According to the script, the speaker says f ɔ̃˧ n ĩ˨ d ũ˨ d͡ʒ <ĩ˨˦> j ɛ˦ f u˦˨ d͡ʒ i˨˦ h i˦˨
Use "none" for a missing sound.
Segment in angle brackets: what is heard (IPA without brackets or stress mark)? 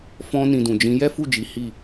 ĩ˨˦